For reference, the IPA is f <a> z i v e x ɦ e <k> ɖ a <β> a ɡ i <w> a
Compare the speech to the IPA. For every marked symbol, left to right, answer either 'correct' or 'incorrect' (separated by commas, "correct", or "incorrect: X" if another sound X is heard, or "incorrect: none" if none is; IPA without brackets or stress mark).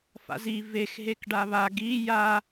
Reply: incorrect: a̰, correct, correct, incorrect: j